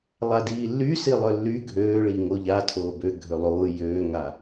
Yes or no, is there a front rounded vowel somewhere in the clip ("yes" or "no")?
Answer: yes